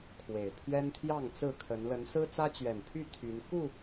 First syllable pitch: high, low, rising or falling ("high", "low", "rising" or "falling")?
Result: low